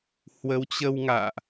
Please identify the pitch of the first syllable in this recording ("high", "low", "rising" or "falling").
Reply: rising